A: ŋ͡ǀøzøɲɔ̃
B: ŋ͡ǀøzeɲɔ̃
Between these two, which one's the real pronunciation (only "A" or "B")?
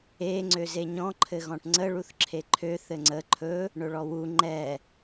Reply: B